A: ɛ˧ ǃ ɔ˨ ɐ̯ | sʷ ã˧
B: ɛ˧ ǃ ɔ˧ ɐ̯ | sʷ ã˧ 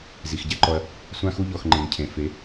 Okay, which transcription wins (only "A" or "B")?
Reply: B